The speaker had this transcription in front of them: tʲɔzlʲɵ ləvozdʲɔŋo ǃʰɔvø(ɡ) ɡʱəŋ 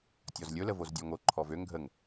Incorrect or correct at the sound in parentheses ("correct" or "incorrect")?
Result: incorrect